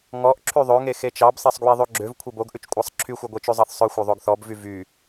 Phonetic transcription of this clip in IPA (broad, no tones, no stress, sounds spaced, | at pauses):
ŋ ɔ ʔ ǁʰ y ðˤ ø ŋ e x e t͡ʃ ɑ b sˤ ɛ sˤ ɡ w i ðˤ ʉ ɡ͡ǁ ø v kʷʰ e b o ɡ ʔ ʉ t͡ʃ kʷʼ ɑ sˤ ǁʰ y xʷ ɑ ɡʷ e t͡ʃ ʉ zˤ ɑ θ sˤ œ xʷ œ ðˤ o ɡ θ ɔ b v y v y